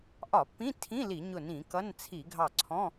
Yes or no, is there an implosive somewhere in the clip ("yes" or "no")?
no